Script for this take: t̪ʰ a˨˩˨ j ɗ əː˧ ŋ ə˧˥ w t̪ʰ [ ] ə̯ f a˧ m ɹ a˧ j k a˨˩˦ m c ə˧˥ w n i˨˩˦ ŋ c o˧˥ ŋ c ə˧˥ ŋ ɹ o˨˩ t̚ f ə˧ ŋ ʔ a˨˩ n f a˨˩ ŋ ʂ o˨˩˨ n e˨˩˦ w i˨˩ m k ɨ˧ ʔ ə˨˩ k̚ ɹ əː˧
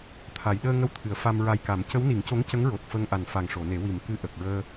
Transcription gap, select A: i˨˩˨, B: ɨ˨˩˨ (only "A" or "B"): B